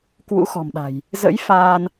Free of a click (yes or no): yes